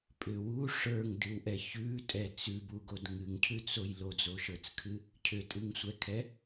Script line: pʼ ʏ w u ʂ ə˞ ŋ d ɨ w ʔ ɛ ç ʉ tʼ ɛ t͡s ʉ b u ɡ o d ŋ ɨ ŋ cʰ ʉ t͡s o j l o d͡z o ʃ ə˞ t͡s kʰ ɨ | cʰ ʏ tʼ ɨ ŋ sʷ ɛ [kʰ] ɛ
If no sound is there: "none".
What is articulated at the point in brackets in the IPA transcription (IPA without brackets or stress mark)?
kʰ